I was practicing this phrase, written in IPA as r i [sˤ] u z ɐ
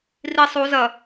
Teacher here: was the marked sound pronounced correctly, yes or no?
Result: yes